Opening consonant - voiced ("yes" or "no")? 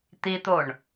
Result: no